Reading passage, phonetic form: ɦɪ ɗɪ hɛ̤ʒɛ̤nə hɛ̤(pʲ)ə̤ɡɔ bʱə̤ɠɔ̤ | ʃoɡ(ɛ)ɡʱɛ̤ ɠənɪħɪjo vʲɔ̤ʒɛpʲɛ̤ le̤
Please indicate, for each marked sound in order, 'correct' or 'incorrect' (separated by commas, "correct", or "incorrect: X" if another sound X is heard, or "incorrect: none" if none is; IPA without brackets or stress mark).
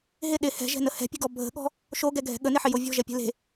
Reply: correct, correct